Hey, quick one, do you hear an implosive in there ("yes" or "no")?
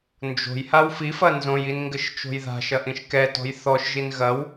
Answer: no